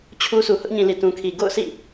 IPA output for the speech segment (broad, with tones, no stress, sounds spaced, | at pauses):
t͡ɕʰ u˦ s u˨ h ʊ˦ ʔ ɲ ĩ˨ l i˨ t ũ˨ kʰ i˨ ɡ o̰˦˨ ʊ̯ sʰ ḭ˦˨